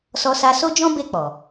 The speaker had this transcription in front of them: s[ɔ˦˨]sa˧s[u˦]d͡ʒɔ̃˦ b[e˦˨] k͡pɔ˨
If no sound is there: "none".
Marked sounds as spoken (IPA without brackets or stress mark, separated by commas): ɔ˧, o˦, e˦˨